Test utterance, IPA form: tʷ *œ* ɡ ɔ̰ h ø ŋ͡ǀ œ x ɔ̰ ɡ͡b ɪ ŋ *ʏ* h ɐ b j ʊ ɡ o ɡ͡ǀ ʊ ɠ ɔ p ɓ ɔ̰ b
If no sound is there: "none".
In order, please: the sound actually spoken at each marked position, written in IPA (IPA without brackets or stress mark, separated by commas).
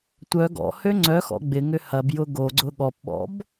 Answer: œ, ʏ